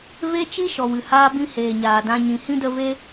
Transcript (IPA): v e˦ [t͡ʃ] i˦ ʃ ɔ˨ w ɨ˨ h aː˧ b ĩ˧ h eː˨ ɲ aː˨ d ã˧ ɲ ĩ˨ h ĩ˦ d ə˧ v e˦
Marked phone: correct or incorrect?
correct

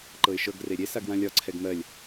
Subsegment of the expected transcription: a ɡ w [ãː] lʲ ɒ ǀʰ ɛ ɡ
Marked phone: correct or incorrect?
incorrect: ã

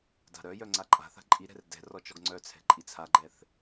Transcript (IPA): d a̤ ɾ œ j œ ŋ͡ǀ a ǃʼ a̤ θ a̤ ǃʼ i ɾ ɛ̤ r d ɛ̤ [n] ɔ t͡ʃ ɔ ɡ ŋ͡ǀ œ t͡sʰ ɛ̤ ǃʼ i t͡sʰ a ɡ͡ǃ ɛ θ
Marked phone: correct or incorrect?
incorrect: r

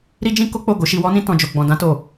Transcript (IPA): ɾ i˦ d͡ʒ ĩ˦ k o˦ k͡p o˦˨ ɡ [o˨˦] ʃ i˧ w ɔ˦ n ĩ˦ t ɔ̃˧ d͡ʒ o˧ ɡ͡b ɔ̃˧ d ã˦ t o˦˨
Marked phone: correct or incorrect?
correct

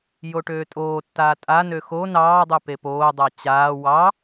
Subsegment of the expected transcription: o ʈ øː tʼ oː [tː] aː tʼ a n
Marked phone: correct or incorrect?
correct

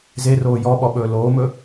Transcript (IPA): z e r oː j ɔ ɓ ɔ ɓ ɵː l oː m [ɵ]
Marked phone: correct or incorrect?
correct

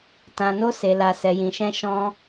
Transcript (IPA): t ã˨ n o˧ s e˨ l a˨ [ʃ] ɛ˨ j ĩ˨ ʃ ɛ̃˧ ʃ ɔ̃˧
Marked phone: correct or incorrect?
incorrect: s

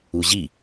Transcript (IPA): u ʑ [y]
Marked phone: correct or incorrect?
incorrect: i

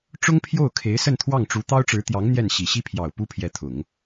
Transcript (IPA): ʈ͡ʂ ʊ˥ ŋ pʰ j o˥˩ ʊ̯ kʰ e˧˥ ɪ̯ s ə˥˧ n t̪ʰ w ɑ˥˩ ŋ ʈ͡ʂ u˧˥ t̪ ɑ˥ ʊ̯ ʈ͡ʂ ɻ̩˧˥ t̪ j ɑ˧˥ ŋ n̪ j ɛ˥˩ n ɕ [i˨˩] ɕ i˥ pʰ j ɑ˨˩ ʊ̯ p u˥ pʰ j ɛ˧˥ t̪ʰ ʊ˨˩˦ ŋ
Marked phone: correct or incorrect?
correct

